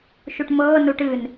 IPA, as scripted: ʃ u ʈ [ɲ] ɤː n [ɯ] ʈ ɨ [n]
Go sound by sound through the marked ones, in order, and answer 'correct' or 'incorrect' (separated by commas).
incorrect, incorrect, correct